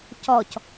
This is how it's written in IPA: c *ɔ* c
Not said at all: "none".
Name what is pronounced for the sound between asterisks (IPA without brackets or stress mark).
ɔ